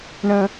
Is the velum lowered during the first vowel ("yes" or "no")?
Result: yes